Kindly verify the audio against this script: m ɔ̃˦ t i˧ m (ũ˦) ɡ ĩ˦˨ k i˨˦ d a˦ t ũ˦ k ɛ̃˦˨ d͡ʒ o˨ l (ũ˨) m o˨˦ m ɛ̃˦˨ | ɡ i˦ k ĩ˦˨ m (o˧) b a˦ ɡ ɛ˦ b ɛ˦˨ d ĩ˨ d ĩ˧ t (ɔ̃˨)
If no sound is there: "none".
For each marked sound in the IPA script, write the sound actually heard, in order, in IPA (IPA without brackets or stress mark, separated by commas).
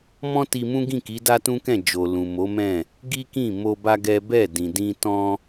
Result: ũ˦, ũ˨, o˧, ɔ̃˦